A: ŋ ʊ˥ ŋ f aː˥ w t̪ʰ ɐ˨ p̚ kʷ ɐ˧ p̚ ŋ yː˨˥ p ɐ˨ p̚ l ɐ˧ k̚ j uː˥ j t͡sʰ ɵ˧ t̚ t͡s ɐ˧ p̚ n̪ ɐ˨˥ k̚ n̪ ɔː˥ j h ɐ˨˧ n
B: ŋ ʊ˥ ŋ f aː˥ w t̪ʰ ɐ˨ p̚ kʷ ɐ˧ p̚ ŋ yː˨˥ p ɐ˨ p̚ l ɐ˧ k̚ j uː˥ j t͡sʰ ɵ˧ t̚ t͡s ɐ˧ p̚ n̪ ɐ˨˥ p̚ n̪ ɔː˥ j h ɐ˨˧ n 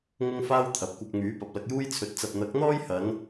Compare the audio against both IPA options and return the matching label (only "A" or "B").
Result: A